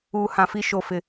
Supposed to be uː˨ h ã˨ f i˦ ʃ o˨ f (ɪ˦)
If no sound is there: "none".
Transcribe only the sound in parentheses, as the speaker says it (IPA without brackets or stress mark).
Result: ɪ˨